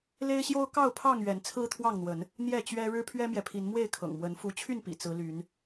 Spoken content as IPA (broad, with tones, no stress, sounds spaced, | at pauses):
l e˦ ɪ̯ ɕ j o˦ ʊ̯ k ɑ˥˨ ʊ̯ pʰ ɑ˥˨ ŋ ɥ ɛ˨˦ n t͡sʰ ɹ̩˦ t̪ʰ w ɑ˥˨ ŋ n̪ w ə˨˦ n | n̪ j ɛ˥˨ t͡ɕ ɥ ɛ˦ ɻ ɻ̩˦ pʰ ɥ ɛ˦ m j ɛ˨ pʰ i˨˦ n m w e˥˨ ɪ̯ kʰ ɤ̰˨˩ ŋ m w ə˨˦ n f u˨˦ t͡ɕʰ y˥˨ n p ḭ˨˩ t͡s ɹ̩˨˦ l y˨˦ n